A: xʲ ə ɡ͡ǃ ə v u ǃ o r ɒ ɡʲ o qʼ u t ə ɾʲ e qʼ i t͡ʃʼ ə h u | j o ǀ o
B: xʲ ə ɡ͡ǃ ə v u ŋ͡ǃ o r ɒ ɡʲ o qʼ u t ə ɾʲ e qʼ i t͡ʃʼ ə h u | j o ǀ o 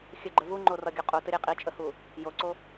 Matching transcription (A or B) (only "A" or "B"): B